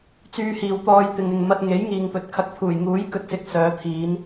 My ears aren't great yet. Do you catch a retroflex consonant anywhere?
no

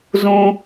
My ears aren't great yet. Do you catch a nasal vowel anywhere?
yes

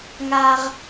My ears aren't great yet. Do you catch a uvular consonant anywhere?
yes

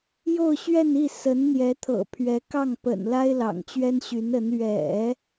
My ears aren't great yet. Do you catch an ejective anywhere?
no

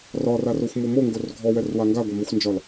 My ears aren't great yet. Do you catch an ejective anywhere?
no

